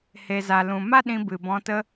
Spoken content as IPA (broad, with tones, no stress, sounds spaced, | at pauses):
h e˨ z a˨ l ũ˨ m a˦ ɗ ĩ˧ b ɨ˨ b ɔ̃˧ t ə˦